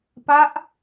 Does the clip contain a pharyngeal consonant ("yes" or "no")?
no